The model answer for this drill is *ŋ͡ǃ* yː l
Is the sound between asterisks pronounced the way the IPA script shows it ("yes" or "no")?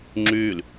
no